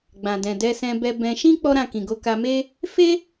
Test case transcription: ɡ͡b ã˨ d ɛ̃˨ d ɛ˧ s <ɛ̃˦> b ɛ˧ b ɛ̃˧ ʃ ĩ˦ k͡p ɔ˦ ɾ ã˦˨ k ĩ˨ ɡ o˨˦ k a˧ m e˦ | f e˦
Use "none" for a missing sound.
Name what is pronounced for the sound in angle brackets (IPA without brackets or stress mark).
ɛ̃˧